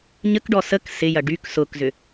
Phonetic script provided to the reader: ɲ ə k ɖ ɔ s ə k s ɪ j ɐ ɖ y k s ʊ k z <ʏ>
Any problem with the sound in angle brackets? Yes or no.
no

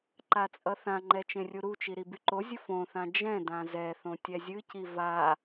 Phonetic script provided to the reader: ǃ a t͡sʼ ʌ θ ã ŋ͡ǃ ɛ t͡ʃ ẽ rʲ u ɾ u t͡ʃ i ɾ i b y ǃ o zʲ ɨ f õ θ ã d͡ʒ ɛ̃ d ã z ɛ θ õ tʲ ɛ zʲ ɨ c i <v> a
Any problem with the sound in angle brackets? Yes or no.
no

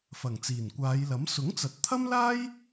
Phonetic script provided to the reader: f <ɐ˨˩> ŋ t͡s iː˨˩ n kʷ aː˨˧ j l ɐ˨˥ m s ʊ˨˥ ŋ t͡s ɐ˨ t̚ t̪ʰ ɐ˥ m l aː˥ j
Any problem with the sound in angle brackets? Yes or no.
no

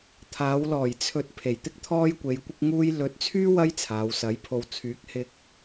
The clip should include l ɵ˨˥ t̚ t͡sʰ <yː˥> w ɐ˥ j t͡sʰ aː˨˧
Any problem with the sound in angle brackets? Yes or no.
no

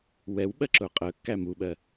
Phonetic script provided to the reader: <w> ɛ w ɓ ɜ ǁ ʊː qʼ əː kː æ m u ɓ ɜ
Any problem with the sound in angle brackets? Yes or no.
no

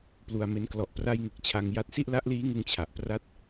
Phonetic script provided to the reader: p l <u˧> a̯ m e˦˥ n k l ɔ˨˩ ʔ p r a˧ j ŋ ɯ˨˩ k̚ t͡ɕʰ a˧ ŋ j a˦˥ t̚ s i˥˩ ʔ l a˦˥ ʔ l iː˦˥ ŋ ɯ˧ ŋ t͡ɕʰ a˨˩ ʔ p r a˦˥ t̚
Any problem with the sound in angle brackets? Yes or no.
no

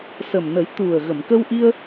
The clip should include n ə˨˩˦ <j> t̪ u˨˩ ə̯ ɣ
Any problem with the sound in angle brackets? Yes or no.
no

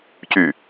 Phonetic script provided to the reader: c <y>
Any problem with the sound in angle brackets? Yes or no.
no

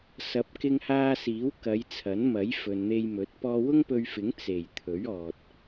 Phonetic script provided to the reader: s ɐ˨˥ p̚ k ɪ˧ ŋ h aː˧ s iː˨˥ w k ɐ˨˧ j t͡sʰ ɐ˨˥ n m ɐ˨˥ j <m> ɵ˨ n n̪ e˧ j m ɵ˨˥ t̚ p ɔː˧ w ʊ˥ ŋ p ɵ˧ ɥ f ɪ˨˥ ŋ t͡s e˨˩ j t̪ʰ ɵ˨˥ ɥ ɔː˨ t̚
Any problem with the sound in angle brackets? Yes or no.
yes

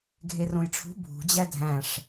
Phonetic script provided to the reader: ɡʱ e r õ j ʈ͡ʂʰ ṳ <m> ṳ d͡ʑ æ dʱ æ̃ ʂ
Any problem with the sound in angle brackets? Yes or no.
yes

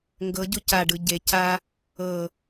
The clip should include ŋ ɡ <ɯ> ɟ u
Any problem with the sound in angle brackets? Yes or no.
yes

